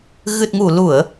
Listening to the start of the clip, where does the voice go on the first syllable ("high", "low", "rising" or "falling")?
low